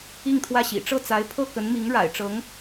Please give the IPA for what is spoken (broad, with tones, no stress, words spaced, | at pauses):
i˥˧ŋt̪ʰwä˥˩ɕḭ˨˩ ʈ͡ʂɤ˥˩t͡sa˧˥ɪ̯ pʰɤ˥˩kə˧˥nmi˧˥ŋ ɻa̰˨˩ɪ̯ʈ͡ʂɤ˧˥ŋ